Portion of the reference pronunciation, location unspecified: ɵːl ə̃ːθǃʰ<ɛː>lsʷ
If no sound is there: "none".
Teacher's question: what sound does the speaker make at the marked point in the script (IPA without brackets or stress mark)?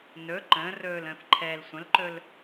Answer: ɛː